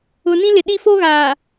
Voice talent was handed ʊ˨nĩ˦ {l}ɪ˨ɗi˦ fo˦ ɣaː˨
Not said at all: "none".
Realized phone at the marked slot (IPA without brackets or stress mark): l